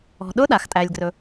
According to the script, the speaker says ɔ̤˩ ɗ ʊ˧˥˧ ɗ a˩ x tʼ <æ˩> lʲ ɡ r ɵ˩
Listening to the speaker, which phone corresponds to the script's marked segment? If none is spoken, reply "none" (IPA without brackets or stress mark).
æ˩